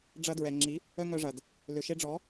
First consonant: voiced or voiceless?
voiced